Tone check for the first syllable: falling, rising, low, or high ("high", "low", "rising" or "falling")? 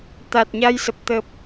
low